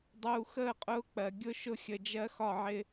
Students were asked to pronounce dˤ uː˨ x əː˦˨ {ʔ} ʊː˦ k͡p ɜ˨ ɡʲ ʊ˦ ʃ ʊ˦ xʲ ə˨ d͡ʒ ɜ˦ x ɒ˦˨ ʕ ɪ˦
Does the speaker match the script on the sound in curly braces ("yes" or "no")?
no